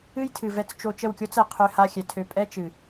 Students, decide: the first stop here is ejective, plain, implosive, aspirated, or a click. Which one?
aspirated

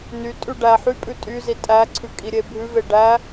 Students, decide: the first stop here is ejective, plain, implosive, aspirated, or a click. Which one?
ejective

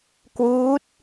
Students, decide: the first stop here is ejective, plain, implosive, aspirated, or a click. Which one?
plain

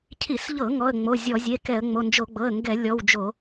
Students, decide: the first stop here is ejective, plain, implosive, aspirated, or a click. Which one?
aspirated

